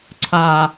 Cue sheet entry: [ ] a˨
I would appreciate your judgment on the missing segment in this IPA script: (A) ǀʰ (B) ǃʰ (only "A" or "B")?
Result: A